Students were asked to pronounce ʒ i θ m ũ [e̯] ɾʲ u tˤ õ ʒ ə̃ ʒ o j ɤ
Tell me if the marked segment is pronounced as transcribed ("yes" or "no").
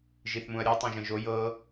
no